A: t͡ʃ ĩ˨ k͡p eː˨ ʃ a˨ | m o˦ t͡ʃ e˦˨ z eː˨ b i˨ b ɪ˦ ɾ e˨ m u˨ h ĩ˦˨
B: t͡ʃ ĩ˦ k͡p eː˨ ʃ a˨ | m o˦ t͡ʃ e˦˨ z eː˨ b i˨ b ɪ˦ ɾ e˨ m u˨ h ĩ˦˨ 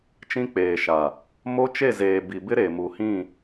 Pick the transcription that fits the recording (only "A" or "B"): B